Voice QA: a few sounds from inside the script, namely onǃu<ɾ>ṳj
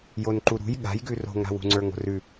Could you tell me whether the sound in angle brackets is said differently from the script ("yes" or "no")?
no